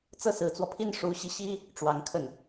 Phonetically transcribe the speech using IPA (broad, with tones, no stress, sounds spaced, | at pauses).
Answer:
t͡s ɤ˥ s ɹ̩˧˥ t͡s w ɔ˧ pʰ i˥ n ʂ u˧˥ ɕ i˧ ɕ i˥ | ʈ͡ʂ w ɑ˧˥ ŋ kʰ ə˥˩ n